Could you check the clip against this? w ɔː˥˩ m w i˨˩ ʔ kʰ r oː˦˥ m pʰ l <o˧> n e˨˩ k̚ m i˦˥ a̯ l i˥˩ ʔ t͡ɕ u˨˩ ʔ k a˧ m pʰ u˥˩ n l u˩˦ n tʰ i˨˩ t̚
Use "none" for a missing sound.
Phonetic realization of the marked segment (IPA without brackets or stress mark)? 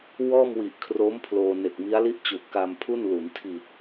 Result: oː˧